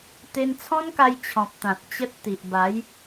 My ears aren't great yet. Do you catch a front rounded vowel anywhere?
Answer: no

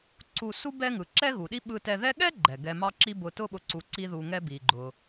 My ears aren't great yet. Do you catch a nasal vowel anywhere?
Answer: no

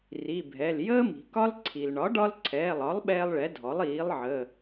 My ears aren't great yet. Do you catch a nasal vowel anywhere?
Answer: no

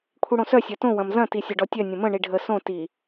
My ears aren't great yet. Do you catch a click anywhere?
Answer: no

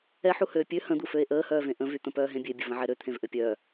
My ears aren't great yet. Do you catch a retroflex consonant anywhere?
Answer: no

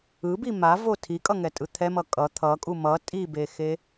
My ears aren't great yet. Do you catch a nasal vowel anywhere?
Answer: no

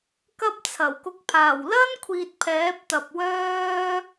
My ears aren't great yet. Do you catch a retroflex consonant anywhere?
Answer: no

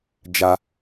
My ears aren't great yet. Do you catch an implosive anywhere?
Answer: no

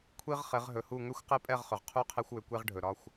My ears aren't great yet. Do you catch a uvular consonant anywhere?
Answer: yes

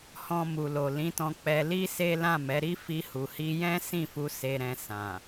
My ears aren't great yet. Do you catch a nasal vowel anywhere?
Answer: yes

